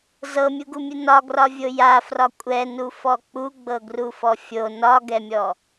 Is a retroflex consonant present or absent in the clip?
absent